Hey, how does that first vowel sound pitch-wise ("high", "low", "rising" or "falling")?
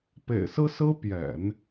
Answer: low